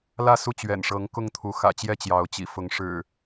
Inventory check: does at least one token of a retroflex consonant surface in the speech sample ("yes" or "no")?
yes